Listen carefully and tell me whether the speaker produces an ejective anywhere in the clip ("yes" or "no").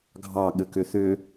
no